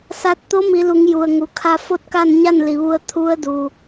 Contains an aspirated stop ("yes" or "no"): yes